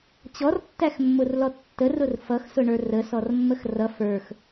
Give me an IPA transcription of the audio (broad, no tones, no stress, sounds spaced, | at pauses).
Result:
t͡ɕ ɔ r tː æ x mː ʊ r l ɔ tː ə r ʊ r f ʌ x s ʊ ɳ ə˞ r ə s ɔ r mː ə x r ʌ f ə˞ x